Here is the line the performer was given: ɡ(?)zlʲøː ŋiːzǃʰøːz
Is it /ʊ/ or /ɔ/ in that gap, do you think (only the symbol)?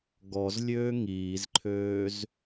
ɔ